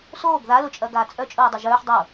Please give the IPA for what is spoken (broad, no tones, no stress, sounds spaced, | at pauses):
s oː ɡ ð a l ʊ t͡ʃʼ ɐ ɡ aː t͡sʼ œ t͡ʃʼ ʊː dˤ ʊ ʒ œː ħ dˤ o